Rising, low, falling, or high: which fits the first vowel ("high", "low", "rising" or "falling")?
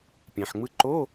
low